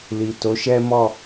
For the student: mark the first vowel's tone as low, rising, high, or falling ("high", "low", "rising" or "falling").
low